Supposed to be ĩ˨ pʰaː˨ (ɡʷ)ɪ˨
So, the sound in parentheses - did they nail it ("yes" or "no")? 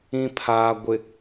yes